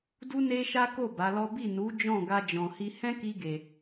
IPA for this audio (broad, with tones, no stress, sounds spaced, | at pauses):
d u˦ n e˦ ʃ a˦ k o˦˨ b a˨˦ l ɔ˦ b i˦˨ n u˨˦ d͡ʒ ɔ̃˦˨ ɡ a˧ d͡ʒ ɔ̃˨ h i˧ h ɛ̃˦ k i˧ ɡ e˨